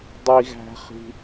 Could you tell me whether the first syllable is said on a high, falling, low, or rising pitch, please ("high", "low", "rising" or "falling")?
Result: high